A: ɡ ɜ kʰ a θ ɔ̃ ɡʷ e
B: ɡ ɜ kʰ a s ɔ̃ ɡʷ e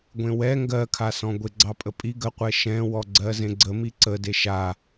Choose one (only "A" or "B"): B